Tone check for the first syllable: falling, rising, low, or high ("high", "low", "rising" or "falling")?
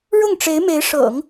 falling